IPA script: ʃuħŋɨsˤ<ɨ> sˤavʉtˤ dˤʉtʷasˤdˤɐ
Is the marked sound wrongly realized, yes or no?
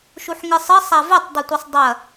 no